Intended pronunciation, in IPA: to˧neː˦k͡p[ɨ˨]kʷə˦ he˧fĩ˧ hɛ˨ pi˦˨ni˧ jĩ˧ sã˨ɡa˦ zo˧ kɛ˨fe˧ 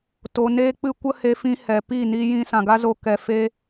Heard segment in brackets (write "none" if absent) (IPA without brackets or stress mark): ɨ˦